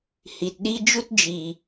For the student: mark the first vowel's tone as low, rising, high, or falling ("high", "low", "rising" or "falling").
low